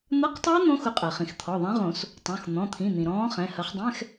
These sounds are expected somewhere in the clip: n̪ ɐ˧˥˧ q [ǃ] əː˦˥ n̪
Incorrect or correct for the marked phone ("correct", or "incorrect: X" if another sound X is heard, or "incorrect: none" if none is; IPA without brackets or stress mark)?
incorrect: tˤ